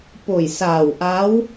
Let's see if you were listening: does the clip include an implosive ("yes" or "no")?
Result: no